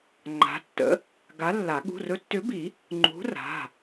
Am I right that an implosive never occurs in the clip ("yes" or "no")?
no